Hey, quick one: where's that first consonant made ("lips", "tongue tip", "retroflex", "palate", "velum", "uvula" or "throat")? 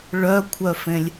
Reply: retroflex